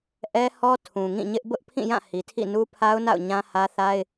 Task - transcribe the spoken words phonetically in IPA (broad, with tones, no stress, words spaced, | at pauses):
ʔɛ˦ hɔ˦ tʰũ˨ŋĩ˦˨ɲɪ˦ʔ bʊ˦ʔpʰĩ˦˨jã˦˨ hi˨tʰḭ˦˨nu˦pʰa˦ʊ̯ na̰˦˨ʊ̯ ɲã˦hä˦θa˦ɪ̯